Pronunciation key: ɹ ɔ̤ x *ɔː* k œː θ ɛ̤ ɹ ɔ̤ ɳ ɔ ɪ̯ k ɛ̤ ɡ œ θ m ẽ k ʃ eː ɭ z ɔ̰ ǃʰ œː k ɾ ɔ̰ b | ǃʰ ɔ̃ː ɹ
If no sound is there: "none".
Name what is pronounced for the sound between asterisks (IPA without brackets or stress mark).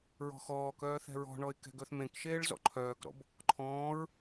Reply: ɔː